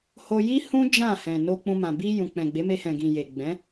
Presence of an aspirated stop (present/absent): absent